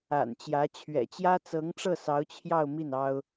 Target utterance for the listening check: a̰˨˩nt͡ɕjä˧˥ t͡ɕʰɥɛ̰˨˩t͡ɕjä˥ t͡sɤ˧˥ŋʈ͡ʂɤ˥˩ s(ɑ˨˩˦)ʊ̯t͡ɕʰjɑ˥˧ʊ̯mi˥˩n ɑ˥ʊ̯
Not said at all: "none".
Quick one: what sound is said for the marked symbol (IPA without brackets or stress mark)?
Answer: ɑ˧˥